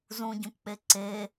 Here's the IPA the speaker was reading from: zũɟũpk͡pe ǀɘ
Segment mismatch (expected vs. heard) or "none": ɘ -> e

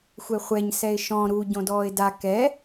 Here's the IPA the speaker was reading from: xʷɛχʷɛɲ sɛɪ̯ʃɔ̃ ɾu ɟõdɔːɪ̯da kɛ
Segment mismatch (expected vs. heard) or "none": none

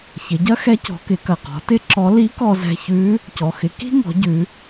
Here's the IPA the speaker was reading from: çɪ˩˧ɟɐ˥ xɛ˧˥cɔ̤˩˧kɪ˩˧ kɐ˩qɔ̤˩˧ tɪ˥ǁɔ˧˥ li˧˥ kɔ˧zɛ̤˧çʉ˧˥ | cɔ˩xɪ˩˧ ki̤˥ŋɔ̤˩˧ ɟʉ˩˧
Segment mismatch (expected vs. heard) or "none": none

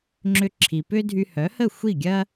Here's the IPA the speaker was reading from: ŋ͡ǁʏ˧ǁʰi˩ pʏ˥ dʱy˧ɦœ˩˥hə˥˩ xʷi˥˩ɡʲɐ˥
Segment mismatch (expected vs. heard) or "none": ɦ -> h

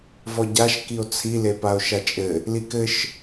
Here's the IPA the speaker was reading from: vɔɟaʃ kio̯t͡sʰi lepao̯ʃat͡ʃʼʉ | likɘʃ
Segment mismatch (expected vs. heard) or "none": ʉ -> ɘ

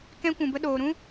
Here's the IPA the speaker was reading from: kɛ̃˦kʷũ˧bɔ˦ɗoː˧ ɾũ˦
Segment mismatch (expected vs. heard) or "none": ɔ˦ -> ə˦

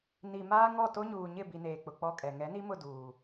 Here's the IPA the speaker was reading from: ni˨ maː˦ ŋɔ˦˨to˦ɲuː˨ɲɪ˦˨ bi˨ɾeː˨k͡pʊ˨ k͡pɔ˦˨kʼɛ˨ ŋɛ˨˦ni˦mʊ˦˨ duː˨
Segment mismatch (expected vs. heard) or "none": ɾ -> n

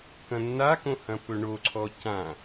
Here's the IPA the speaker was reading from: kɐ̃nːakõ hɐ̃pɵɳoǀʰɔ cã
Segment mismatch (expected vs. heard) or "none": none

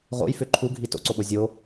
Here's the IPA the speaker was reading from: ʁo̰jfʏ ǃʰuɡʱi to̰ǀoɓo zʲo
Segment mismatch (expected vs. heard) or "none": none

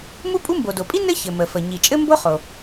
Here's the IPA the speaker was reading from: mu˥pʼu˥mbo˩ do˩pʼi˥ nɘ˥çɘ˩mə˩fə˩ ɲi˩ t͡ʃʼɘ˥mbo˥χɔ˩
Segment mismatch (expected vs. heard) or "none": ɔ˩ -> o˩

